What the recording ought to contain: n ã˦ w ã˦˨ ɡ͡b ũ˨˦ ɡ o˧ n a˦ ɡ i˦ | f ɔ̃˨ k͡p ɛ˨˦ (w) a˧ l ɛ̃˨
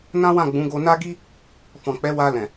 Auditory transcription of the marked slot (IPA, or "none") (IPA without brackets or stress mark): w